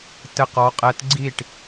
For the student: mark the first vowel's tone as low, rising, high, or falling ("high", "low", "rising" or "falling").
falling